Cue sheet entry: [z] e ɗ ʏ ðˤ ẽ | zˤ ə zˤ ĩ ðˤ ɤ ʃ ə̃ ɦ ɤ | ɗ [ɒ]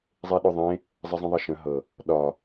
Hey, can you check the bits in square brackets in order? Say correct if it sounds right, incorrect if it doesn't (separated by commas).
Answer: incorrect, correct